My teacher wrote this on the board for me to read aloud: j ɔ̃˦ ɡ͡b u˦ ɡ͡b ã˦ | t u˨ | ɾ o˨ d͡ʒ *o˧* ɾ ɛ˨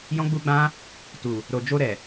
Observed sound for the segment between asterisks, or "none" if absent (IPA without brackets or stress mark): o˧